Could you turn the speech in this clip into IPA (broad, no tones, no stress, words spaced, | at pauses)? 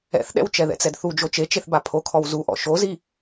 ɛ̰θɗɛ̰w t͡ʃɛðɛ̰t͡sɛdθu d͡ʒot͡ʃet͡ʃeθba pʰokʰɔw zuʔɔ̰ ʃozi